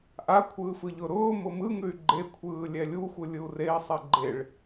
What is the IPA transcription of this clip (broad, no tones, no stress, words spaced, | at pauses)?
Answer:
ʔakʷʰɯːf ɯʎʊɾʊːmʊ mɯŋʉy̯ ɡ͡ǃekʷʰɯː lʲɛlʲuxʷɯ lʲɯu̯rei̯sˤɛ ɡ͡ǃeɭ